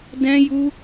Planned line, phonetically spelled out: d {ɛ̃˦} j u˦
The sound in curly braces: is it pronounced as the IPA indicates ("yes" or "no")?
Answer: yes